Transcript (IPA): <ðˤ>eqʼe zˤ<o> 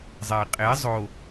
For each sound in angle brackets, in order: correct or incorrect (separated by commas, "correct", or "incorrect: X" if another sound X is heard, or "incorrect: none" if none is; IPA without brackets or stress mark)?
incorrect: zˤ, correct